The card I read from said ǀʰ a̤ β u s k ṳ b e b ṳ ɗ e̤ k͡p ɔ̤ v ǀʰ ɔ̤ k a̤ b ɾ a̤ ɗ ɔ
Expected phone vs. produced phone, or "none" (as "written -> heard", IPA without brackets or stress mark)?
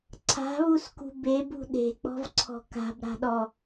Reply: none